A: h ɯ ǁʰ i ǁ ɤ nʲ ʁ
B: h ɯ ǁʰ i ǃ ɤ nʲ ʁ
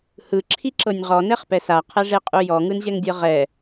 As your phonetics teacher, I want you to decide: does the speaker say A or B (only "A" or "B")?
A